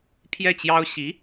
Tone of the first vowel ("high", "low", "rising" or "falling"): falling